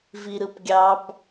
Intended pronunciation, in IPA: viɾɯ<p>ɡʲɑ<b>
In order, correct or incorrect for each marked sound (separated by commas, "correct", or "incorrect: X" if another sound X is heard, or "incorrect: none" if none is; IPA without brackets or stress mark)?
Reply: correct, correct